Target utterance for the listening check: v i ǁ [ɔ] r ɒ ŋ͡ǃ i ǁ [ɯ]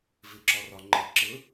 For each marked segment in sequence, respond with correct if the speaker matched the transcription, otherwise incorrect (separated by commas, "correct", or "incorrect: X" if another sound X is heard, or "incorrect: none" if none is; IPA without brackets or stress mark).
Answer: correct, correct